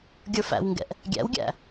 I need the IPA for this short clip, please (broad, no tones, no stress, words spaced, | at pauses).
ɡʲə˞fæ̰wŋɡɛ̰ʔ | ɡʲæ̰wɡʲæ̰